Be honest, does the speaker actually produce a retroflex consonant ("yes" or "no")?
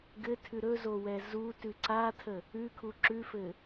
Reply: no